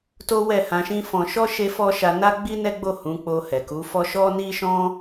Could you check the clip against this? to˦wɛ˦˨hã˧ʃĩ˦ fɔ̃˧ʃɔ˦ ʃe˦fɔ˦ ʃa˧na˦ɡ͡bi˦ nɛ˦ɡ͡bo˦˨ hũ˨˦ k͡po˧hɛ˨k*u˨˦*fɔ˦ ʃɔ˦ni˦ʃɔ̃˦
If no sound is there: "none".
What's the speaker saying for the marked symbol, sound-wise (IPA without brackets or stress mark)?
u˨˦